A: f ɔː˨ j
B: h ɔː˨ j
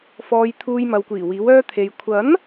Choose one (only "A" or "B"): A